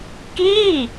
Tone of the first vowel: falling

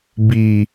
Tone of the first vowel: low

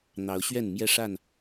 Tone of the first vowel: rising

